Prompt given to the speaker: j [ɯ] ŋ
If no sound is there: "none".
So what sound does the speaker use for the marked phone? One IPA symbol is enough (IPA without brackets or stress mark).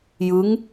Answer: ɯ